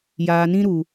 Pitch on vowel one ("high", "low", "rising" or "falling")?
low